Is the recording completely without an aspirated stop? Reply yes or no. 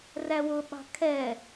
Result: no